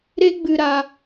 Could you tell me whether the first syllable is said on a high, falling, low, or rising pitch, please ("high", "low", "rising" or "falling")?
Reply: high